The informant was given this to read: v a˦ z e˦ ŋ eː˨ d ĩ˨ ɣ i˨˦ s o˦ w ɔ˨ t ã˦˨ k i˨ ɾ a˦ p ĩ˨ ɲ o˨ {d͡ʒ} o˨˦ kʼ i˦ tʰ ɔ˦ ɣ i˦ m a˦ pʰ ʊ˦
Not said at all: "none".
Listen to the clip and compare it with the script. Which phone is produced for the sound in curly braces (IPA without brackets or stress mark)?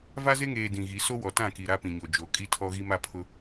d͡ʒ